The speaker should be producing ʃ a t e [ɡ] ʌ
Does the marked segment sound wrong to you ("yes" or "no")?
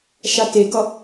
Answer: no